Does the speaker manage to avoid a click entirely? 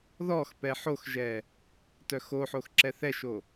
no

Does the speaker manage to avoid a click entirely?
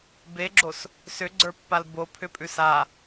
no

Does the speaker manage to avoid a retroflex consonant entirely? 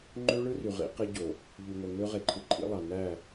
no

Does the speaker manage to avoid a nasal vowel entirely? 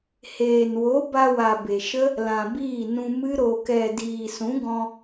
no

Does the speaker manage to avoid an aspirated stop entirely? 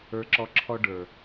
no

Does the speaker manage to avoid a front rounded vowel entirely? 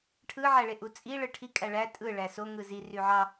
no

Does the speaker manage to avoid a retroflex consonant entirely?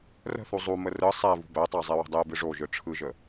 no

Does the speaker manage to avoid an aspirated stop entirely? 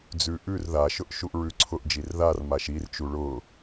no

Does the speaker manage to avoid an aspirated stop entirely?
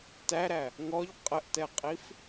yes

